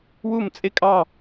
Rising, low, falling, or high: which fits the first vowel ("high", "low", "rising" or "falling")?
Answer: falling